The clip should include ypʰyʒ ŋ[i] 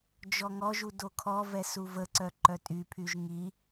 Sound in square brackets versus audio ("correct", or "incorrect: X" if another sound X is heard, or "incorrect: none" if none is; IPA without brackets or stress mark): correct